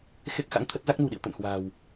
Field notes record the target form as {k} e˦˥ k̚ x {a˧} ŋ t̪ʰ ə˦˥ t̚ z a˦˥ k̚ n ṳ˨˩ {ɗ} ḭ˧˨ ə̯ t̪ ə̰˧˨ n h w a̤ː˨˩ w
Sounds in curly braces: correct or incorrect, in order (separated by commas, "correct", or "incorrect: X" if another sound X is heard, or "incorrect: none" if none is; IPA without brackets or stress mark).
incorrect: x, incorrect: a̰˧˥, correct